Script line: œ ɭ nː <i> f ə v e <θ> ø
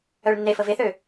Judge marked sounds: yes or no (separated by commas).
no, yes